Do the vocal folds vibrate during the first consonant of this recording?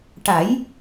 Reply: no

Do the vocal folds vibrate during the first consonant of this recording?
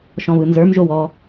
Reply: no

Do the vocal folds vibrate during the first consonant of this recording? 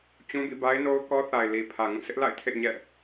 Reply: no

